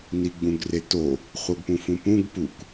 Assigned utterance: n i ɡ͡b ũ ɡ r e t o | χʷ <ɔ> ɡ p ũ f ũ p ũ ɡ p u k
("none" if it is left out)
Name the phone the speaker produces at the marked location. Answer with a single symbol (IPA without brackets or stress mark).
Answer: ɤ